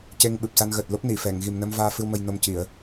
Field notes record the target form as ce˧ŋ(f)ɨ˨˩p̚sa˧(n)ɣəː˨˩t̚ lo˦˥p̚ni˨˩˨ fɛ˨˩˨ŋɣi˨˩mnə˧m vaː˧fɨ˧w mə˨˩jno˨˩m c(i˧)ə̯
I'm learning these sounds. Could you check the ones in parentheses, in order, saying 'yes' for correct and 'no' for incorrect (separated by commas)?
no, yes, no